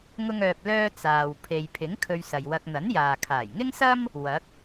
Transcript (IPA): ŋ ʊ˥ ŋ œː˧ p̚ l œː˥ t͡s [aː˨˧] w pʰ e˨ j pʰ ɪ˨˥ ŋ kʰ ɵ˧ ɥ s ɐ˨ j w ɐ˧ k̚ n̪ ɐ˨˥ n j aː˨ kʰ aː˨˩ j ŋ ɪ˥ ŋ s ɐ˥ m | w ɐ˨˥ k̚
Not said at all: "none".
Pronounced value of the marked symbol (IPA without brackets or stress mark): aː˨